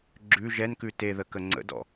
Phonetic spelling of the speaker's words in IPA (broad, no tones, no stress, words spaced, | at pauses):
ɡ͡ǁʉ ʒɛnkʉ teðə kəŋ͡ǀə̰dɔ̰